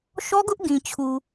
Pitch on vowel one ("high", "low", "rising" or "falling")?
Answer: high